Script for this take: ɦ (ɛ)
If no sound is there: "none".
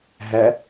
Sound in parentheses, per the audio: æ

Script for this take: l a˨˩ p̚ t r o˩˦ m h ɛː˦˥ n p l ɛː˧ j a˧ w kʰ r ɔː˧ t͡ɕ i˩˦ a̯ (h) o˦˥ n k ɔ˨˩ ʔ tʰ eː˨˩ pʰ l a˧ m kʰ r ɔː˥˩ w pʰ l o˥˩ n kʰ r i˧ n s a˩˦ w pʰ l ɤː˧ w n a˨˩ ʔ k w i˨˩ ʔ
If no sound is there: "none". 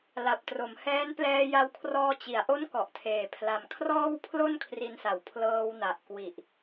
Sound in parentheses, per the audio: ʔ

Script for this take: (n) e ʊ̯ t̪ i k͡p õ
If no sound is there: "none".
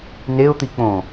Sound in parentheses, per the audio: n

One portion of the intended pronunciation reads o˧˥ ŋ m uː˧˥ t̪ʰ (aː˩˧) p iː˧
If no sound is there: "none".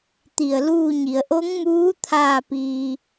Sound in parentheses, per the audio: aː˥˨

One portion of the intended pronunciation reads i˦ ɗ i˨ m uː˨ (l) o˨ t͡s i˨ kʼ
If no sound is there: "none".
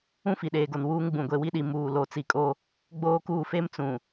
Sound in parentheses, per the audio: l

